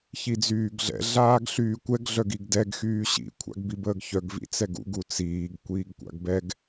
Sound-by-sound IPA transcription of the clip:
ç i d͡z yː ɡ ɮ ɛ̰ ɮ aː ɡ ɬ yː kʷ ɛ ɡ ɮ œ ɡ i ɡ d ɛ ɡ x yː ɕ ḭ kʷʰ a̰ ɡ b i b əː ɡ ç œ ɡ v ḭ t͡s ɛ ɡ ṵ ɡ u t͡s iː ɡ kʷ iː ɡ kʷ a̰ ɡ b ɛ ɡ

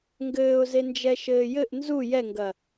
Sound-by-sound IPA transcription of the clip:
ŋ ɡ ɘː ʊ̯ z e n d͡ʒ ɛ ʃ ɘː j ɘ ʔ n z u j ɛ ŋ ɡ ɐ

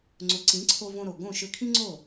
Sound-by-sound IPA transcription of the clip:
ŋ͡ǀ ʊ˩˥ ǀ ĩ˩˥ ǀʰ o˧ v õ˧ ɾ o˩ ɡ õ˥˩ ʃ ø˧ kʰ ĩ˥ ŋ͡ǀ o˥˩

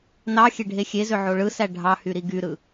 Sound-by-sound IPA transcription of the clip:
n ɑ xʲ e ɖʱ e xʲ e z ø ʕ o ɭ ɯ s æ ɖʱ ɑ h y ɾ i ɡ y ɾ ɯ

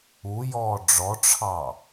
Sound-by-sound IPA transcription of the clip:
u j ɔː ɖ͡ʐ ɔ ʈ͡ʂʰ ɑ

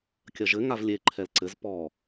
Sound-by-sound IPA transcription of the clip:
kʲ ɐ ʒ ɘ ŋ a v lʲ e ǃʰ ɛ l ǀ ɘ z p ɔ

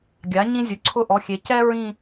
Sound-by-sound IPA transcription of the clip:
ɡʲ a˩˥ ɲ ĩ˥ zʲ ʊ˩˧˩ ǀʰ ʊ˥˧ ʔ ɔ˩˧˩ xʲ e˩˥ c ɛ˥ ɹ ĩ˥˧

